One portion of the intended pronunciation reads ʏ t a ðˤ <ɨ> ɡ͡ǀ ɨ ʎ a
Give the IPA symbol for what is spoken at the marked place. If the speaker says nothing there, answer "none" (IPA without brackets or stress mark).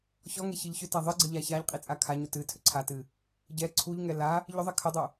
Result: ɨ